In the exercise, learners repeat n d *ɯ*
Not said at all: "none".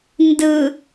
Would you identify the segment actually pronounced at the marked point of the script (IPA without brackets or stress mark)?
ɯ